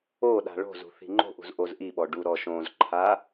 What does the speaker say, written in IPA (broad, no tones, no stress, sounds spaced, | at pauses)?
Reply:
o ɗ a̤ ɭ o̤ z ṳ θ i̤ ŋ͡ǃ o̤ ʔ ṳ z ʔ o z ʔ i ɓ ɔ ɖ u ɾ ɔ ʃ õ z ǃʰ a